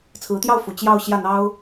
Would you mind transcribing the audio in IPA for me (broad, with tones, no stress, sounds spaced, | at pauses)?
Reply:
t͡sʰ ɹ̩˧˥ t̪ j ɑ˥˩ ʊ̯ f u˨˩ t͡ɕ j ɑ˥˧ ʊ̯ ɕ j ä˥˩ n̪ ɑ˥ ʊ̯